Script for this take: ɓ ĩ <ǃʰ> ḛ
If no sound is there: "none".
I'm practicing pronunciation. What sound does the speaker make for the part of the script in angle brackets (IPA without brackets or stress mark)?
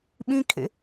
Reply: kʰ